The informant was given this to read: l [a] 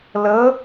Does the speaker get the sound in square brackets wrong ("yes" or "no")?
yes